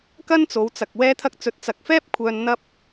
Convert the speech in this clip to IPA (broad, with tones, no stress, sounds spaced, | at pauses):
k ɐ˥ n t͡s o˨˧ w t͡s ɐ˨ k̚ w ɛː˥ t̪ʰ ɐ˥ k̚ t͡s ɵ˧ t̚ t͡s ɐ˨ k̚ f ɛː˥ p̚ kʷʰ œː˧ n n̪ ɐ˥ p̚